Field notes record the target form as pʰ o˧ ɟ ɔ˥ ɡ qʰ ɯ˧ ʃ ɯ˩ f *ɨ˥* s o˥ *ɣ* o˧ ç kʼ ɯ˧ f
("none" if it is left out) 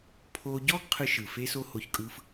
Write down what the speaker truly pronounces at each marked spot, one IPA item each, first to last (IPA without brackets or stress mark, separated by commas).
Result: e˥, h